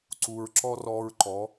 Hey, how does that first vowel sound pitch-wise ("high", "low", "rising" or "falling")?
low